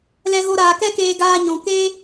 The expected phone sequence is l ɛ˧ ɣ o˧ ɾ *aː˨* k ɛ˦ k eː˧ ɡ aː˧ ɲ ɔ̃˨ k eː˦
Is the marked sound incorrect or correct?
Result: correct